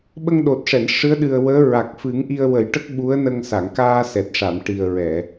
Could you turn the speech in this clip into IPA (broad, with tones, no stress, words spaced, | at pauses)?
ɓə˧ŋɗo˨˩t̚ʂɛ˨˩˨n ʂɨ˧˥ə̯ɗɨ˨˩ə̯wəː˧˥ ɹa˨˩k̚fɨ˨˩˦ŋ ʔi˧ə̯wə˨˩˦jʈə˦˥k̚ ɓu˧˥ə̯nə˧ŋ sa˨˩˨ŋkaː˧sɛ˨˩t̚ʂa˨˩˨m ʈi˨˩ə̯ɹɛ˨˩˨